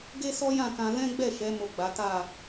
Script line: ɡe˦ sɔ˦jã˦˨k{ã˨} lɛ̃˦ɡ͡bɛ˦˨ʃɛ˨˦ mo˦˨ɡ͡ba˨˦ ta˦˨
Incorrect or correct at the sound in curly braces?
incorrect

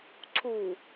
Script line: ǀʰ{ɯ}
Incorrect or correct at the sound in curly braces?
incorrect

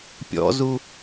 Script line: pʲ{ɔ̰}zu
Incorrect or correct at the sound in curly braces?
correct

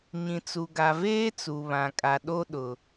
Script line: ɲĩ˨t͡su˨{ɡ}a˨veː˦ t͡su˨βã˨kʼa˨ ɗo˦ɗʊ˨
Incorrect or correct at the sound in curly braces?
correct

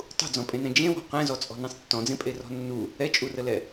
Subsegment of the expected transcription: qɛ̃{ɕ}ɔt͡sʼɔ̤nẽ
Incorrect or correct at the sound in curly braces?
incorrect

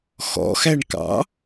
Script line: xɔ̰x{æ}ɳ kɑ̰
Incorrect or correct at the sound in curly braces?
correct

